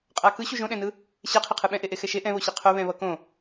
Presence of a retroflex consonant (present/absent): absent